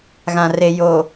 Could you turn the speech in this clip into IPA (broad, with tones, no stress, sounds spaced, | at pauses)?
ɣ ã˨ r e˨ j o˨